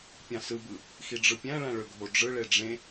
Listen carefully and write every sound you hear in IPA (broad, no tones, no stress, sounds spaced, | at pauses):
pʲ ɑ̃ s ɯ b ɯ | x i ɖ͡ʐ ɯ pʲ æ̃ ɭ æ̃ ɭ ø ɡʱ o ɖ͡ʐ ɯ ɭ e ɖ͡ʐ ẽ